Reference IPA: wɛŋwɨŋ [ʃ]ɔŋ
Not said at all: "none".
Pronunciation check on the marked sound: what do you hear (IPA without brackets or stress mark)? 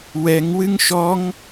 ʃ